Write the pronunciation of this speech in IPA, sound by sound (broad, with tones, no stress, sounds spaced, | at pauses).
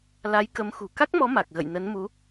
l a˨˦ j k ə˨˦ m x ṳ˨˩ k a˦˥ k̚ m ɔ˨˦ m a˨˩ k̚ ɣ ə̰˧˨ j n ə˨˦ n m u˨˦